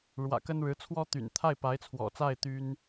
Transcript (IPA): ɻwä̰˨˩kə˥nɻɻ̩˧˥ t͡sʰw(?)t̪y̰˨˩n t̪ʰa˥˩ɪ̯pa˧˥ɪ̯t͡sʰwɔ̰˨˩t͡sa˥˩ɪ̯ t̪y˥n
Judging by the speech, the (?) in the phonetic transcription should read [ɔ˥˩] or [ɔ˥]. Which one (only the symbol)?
ɔ˥